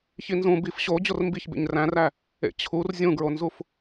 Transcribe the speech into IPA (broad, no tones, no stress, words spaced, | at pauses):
çinzũ bif ɕo d͡ʑormbiç bḛɲræ̃ræ | ḛt͡ɕʰur zʲũɡɹonzuf